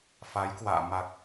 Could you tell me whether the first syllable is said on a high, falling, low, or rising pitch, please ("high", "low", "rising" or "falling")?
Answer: rising